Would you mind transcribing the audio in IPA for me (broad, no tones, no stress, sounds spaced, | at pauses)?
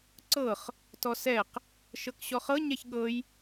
ǀ ɤ χ | t ɔ s ɛ q | ʃ ɤ k ɕ ɔ χ ɤ ɲ ɛ ç ɠ ɤ j